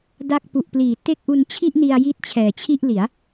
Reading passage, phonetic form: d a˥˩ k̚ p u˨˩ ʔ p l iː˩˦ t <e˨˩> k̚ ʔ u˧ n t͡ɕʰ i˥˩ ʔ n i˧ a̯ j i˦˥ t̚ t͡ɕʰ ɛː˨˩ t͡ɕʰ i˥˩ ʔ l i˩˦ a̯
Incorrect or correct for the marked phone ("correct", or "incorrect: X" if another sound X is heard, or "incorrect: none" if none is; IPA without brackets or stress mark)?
incorrect: e˥˩